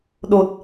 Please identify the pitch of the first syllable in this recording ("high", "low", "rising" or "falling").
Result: low